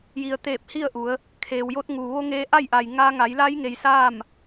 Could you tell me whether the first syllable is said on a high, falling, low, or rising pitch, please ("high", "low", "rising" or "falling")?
low